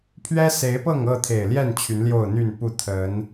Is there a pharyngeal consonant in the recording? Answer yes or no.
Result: no